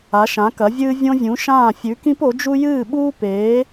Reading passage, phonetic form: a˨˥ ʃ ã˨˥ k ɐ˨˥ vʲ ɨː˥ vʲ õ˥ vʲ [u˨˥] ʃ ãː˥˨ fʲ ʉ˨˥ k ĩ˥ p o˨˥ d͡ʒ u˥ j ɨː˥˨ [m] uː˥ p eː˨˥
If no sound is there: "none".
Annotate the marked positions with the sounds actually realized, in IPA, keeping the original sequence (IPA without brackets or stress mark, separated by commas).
ũ˨˥, ɓ